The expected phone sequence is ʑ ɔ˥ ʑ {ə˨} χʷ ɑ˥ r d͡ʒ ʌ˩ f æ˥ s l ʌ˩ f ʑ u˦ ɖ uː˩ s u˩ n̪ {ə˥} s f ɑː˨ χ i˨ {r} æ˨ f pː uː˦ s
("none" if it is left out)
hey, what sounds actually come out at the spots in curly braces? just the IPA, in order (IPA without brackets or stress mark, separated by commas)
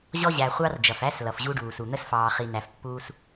æ˨, ə˥, n̪